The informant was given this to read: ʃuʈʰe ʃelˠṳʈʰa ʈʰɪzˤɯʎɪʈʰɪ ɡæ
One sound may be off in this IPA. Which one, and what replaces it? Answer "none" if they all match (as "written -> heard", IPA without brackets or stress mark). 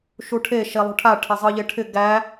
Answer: none